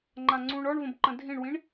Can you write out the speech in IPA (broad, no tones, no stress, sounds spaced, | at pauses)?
ŋ͡ǃ ã ŋ͡ǀ ũ ɳ ɔ ɳ v ə̃ b ǃ ə̃ dʱ ĩ ɳ w ĩ ɳ